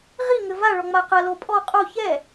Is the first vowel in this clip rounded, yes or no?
no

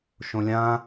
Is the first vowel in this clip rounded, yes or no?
yes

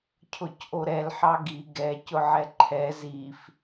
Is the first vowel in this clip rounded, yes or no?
yes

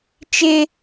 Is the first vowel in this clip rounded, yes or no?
no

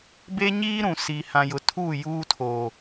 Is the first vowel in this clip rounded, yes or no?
no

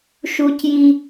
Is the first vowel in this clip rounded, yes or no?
yes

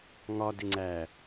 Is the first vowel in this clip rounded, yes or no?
yes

